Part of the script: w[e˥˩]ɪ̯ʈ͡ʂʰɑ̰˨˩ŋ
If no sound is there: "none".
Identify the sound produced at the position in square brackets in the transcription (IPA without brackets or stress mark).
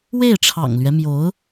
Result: e˥˩